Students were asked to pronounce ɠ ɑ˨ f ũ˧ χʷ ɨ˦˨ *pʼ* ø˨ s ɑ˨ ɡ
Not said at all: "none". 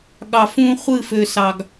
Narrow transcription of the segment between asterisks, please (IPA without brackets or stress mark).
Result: f